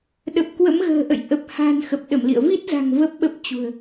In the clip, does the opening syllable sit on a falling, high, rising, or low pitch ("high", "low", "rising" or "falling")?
low